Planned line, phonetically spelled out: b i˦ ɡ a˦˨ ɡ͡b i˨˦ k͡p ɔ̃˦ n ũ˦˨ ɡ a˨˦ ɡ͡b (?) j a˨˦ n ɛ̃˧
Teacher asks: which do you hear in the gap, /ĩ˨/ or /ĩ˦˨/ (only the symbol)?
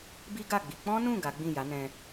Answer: ĩ˦˨